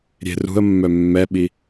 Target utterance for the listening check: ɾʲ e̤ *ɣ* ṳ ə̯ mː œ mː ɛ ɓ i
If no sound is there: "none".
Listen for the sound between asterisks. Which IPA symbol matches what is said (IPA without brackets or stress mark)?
r